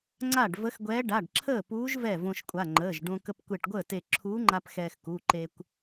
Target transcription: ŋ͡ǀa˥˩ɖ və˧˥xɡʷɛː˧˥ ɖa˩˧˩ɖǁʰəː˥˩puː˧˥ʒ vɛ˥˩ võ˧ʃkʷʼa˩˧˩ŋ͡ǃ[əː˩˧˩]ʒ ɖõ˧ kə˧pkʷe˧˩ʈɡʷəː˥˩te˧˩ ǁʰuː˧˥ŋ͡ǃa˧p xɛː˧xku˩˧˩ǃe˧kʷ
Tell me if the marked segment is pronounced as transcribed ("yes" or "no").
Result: yes